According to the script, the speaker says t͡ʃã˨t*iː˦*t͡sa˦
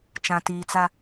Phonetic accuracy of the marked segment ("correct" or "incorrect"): incorrect